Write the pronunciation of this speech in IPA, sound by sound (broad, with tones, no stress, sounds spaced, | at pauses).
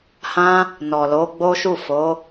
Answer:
h ã˦ | n ɔ˨ l o˨˦ ɡ͡b o˦ ʃ u˦˨ f o˨˦